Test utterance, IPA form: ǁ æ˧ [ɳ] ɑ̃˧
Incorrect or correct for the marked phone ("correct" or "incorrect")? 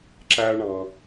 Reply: correct